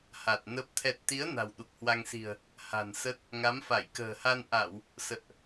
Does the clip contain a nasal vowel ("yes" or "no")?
no